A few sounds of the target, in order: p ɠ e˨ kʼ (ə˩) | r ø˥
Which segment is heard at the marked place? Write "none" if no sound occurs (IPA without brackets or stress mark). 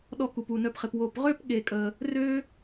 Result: ə˩